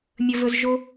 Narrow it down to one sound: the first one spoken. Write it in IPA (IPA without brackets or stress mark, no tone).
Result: mʲ